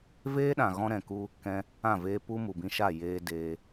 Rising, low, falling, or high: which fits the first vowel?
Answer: high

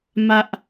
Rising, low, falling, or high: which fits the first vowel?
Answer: high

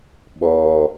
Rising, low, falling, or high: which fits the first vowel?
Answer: low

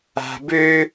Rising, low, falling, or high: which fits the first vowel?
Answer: low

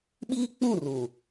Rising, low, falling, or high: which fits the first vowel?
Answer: high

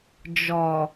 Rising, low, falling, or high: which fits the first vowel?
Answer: low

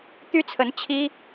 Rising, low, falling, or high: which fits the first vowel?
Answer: high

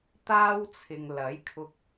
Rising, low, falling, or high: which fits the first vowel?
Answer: high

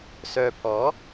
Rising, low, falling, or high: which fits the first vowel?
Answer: low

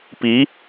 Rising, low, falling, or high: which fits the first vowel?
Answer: rising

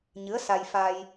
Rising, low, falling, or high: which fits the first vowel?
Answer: rising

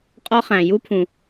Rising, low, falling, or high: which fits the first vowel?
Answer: high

